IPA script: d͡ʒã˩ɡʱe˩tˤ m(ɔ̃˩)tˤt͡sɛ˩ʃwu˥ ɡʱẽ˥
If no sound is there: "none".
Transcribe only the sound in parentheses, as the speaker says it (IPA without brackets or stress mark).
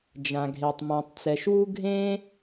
ɔ̃˩